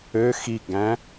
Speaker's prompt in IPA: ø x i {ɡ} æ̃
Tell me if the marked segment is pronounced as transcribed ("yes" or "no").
yes